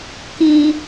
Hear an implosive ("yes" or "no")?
no